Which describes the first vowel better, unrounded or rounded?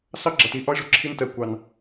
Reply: unrounded